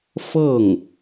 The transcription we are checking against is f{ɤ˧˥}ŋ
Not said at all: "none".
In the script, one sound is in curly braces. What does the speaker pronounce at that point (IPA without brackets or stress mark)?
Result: ɤ˥˩